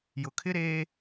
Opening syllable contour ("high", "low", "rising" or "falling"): low